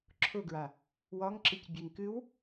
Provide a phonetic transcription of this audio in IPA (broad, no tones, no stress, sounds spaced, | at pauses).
ǁʰ ʊ ɡ ɹ a | w ɒ ŋ ǁ ɨ c bʲ e ŋ k ɨ w